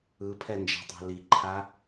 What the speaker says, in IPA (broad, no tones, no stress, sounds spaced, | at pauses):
ɯ pʰ ɛ n d͡ʒ a̤ tˤ ɑ̤ l i ǃʰ a